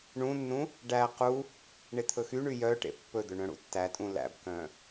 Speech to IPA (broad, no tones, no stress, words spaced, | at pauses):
ɳũnːũ | ɖæ qu | ɳet̪ʰɵxyɳy jœʈḛ pːɵd̪ɵ ɳœ̃ɽṵtːætʼũ læ̰bkœ̃